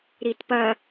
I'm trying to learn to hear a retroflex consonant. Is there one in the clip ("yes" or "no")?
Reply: no